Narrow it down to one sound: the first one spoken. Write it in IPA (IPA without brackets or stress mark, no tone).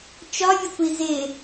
t͡ʃ